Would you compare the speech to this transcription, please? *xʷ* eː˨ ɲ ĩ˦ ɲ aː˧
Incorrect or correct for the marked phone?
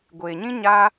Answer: incorrect: ɡʷ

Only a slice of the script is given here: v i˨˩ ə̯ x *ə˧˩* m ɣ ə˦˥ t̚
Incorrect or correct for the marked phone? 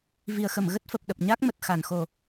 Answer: correct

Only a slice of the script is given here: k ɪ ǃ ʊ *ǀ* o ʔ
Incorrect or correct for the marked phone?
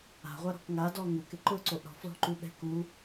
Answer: correct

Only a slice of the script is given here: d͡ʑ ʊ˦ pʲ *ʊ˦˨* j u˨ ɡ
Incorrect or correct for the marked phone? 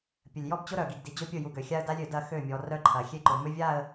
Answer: correct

